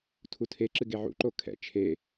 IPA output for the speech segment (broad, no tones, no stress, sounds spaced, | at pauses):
tʰ u tʰ e ǁ ɨ ɡ e ʕ ṵ ǃ o kʰ ɛ̰ t͡ʃʰ e